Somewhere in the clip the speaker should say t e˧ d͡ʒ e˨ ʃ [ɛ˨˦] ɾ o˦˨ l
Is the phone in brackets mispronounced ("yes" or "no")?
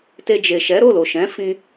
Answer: no